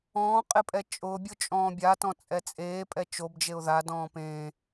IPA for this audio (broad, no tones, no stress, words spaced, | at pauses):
ɔ̃ː qʼɪpʼɛt͡ʃʼʊbʲʊ t͡ʃʼɔ̃ːbʲatɔ̃ t͡sʼɛt͡sʼeːpʼɛ t͡ʃobd͡ʒeʊ̯ ðadɔ̃ː pẽ